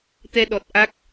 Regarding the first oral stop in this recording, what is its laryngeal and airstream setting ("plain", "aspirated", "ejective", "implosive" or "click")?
plain